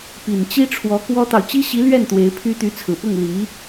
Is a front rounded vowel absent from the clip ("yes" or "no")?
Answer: no